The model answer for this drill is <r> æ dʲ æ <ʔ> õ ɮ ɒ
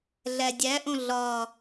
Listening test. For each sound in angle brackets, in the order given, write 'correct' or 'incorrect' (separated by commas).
incorrect, correct